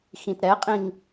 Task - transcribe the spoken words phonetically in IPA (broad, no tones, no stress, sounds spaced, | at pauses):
x ĩ t ɾ ɛ qʼ ĩ ŋ